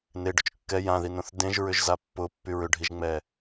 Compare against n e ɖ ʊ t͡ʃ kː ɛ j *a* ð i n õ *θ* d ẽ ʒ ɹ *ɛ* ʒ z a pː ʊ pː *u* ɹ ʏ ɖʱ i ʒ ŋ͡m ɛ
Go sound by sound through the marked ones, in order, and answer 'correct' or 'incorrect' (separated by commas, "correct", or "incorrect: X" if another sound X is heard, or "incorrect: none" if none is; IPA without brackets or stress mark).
incorrect: ã, correct, incorrect: ʏ, incorrect: y